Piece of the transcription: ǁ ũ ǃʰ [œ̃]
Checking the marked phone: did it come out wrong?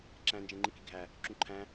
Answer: yes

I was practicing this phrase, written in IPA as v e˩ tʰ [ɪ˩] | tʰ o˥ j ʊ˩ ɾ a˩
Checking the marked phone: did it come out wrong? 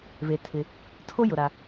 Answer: no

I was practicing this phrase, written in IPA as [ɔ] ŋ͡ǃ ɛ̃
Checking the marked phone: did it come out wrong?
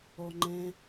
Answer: no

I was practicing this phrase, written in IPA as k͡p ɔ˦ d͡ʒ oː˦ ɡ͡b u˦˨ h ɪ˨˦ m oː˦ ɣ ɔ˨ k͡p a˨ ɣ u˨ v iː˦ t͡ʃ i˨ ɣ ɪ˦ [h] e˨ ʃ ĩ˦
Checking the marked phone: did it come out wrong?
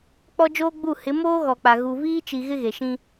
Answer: yes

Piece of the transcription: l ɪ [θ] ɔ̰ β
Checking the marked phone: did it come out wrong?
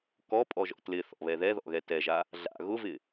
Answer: no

